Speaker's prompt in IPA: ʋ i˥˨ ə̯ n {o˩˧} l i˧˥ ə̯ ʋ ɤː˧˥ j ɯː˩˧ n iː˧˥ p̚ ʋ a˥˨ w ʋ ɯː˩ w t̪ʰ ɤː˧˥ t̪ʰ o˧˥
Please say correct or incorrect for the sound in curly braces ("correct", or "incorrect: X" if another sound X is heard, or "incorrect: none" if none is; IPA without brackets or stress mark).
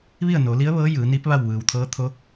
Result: correct